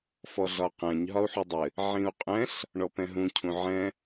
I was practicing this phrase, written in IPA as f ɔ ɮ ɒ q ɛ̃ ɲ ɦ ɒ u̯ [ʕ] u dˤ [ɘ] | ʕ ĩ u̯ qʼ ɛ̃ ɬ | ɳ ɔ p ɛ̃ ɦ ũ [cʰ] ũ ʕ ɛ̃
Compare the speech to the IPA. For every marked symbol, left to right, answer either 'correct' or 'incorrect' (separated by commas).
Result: incorrect, correct, correct